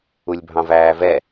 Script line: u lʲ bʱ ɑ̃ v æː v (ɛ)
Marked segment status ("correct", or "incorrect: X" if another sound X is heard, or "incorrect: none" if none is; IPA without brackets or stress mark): correct